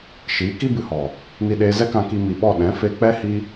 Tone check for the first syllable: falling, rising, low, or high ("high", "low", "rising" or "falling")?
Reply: rising